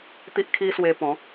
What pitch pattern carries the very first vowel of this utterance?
high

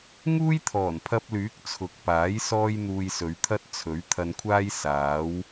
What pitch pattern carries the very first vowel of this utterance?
high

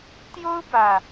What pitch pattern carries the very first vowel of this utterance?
high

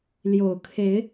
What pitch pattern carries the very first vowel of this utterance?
low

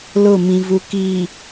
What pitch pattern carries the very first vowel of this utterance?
falling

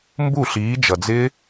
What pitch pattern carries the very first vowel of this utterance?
falling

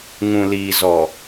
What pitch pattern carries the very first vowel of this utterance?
low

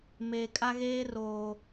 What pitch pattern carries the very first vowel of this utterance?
low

